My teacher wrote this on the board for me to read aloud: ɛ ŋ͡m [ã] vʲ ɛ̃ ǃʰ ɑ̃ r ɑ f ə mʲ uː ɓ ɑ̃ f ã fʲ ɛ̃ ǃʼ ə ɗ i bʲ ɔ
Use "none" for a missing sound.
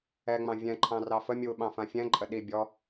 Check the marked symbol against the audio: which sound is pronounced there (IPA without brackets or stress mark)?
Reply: ɑ̃